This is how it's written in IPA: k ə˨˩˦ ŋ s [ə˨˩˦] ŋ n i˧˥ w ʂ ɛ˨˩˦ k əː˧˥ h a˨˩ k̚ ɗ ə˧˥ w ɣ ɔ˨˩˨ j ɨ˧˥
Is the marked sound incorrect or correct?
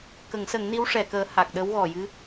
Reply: correct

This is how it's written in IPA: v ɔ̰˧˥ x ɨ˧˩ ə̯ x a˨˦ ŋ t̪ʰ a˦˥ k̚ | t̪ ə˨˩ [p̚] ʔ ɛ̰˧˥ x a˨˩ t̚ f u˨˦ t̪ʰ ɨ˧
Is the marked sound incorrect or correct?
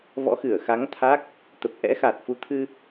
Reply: correct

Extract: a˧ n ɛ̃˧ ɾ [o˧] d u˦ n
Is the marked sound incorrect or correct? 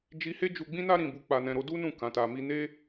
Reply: correct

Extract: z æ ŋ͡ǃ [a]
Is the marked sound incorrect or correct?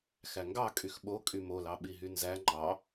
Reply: incorrect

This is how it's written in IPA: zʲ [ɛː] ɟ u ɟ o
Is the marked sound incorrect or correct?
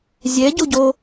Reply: incorrect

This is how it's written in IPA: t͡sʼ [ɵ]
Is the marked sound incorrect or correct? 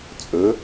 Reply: correct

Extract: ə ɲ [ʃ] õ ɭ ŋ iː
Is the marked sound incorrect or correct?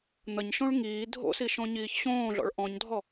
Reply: correct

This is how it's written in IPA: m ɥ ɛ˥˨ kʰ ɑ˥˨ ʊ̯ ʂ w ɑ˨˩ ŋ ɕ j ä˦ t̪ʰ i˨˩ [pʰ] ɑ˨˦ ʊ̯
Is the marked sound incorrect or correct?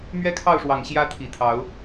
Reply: incorrect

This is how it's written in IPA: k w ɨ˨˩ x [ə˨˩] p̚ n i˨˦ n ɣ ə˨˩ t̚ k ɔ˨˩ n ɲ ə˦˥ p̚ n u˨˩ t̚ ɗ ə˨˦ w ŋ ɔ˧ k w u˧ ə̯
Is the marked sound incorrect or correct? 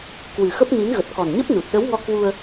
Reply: incorrect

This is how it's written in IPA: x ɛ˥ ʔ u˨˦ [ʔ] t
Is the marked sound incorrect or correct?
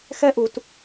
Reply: incorrect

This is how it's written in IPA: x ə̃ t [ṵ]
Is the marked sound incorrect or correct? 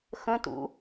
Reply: correct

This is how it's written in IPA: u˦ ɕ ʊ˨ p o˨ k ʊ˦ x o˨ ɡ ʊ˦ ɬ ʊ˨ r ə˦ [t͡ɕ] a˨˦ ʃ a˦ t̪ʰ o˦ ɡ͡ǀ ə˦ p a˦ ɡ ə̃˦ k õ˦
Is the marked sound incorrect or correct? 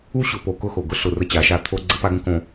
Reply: correct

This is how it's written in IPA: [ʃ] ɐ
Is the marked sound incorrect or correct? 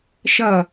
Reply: correct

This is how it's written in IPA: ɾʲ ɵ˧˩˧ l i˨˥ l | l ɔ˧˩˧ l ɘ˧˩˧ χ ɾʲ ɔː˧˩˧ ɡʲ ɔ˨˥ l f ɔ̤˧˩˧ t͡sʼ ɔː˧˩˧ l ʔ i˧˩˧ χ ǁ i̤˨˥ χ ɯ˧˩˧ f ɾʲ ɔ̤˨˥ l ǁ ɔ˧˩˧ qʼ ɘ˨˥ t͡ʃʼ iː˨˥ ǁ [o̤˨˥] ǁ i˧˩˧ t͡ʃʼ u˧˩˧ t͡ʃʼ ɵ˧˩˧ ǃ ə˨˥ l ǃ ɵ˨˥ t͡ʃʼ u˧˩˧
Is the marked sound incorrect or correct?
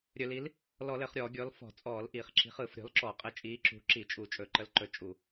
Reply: incorrect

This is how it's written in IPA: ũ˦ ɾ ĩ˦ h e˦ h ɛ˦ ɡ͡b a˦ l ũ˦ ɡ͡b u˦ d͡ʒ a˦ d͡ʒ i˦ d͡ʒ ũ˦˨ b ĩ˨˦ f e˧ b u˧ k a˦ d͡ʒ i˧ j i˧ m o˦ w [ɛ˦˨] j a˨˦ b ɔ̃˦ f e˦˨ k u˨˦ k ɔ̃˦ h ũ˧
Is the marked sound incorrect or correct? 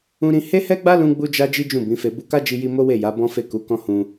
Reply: incorrect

